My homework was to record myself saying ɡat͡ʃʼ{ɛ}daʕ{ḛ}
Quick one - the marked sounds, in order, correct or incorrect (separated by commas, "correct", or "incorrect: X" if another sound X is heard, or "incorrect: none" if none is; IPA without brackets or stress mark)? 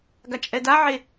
correct, incorrect: e